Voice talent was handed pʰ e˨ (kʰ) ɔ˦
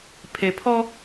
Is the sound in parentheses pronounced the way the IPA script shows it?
no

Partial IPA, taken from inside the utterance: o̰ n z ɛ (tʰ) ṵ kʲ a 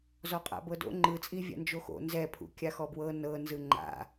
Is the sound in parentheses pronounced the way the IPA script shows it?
no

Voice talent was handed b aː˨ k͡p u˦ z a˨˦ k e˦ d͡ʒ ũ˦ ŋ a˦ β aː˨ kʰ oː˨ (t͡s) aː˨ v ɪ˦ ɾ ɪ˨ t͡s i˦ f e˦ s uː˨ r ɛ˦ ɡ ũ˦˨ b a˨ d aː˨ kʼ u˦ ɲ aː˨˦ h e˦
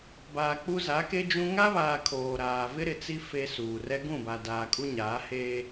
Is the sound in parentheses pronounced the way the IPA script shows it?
no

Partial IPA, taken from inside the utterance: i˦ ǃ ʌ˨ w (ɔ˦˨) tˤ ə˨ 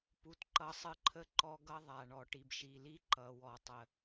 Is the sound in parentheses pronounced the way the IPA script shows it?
no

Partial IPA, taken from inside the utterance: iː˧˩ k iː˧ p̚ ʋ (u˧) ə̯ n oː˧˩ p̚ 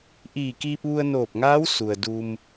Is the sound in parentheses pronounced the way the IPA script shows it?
yes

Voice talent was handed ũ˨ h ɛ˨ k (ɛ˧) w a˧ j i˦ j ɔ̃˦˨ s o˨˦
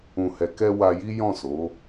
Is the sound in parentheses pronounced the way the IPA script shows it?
yes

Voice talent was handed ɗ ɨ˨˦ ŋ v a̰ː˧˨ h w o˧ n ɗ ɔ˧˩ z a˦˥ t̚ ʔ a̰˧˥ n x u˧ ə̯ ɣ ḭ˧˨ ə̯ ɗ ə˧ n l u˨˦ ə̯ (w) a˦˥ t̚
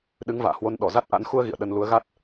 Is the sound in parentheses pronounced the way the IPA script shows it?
no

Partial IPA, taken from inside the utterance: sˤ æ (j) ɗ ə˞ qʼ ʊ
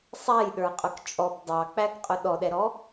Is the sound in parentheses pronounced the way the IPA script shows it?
yes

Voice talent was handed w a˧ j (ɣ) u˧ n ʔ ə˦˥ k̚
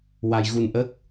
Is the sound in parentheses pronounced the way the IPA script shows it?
yes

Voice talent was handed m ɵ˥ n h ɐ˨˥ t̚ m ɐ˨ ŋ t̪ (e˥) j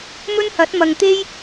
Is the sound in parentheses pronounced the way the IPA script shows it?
yes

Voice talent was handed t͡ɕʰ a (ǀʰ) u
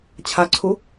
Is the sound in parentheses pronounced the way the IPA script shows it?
yes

